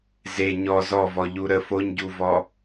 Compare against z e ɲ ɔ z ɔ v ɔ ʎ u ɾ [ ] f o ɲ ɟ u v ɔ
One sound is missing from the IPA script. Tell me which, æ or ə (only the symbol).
ə